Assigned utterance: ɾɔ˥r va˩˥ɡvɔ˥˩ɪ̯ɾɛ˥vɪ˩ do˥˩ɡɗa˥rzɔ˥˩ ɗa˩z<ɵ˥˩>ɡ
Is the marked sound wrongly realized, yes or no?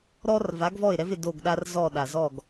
yes